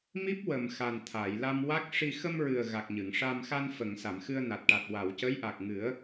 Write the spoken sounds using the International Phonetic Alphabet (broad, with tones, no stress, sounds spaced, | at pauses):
m i˦˥ p̚ w ə˨˩ m x a˨˩ n t̪ʰ a˨˩˨ j l a˧ m w a˦˥ k̚ ʂ i˧ x ə˧ m ɹ ɨ˨˩ ə̯ ɣ a˨˩ k̚ ɲ ɨ˨˩˨ ŋ ʂ a˧ m x a˧ n f ə˨˩˨ ŋ s a˨˩˨ m x ɨ˧ ə̯ n a˨˩ t̚ ʈ a˨˩ t̚ w a˨˩˨ w c ə˧˥ j ʔ a˨˩ k̚ ŋ ɨ˨˩˦ ə̯